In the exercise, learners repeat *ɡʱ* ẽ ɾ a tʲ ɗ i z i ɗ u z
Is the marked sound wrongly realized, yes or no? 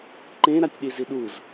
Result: yes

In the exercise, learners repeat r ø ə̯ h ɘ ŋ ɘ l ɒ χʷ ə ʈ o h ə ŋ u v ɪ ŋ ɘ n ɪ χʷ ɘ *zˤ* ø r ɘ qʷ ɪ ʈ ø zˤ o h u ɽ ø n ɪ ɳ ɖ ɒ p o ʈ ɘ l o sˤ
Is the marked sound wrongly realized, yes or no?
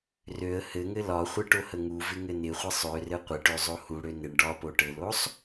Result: yes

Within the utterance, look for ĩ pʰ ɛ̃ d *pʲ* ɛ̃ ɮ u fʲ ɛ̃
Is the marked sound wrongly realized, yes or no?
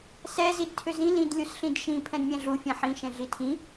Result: yes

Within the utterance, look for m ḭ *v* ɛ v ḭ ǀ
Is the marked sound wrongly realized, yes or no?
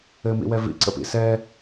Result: yes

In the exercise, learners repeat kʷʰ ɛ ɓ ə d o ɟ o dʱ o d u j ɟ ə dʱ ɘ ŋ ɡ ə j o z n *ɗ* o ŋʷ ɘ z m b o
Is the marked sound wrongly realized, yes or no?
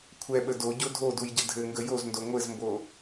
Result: yes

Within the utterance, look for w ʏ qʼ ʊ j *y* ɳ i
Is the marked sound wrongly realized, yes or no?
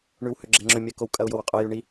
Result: no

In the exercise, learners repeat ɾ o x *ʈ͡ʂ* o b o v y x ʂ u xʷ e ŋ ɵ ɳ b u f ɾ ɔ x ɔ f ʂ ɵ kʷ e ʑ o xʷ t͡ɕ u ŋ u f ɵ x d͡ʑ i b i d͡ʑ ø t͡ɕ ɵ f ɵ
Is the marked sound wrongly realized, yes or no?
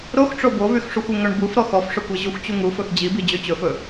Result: no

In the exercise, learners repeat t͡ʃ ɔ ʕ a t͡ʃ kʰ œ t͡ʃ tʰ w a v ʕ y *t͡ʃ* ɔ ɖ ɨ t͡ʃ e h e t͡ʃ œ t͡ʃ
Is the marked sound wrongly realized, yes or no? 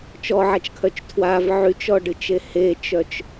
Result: no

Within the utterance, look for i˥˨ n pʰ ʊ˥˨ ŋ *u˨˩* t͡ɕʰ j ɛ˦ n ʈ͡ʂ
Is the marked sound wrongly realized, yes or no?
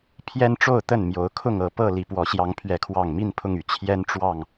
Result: yes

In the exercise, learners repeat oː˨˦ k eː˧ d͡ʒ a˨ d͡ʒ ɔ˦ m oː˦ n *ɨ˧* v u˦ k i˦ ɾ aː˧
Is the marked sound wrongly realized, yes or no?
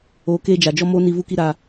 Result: yes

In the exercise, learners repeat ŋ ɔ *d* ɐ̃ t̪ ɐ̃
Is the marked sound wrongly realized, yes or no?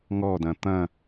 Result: no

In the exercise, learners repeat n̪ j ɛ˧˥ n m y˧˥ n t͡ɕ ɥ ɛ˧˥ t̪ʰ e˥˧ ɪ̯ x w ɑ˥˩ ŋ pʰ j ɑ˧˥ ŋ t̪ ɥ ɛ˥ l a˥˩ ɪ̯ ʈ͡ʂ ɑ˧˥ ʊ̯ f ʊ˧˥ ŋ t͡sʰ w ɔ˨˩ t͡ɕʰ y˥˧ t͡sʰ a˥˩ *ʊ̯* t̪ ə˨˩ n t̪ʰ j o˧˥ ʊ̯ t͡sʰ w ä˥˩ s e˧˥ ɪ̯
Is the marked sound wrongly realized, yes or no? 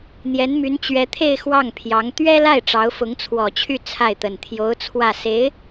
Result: yes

